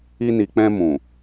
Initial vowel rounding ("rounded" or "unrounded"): unrounded